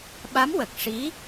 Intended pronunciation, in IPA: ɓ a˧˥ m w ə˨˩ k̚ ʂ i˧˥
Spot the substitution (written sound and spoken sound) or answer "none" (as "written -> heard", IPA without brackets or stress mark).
none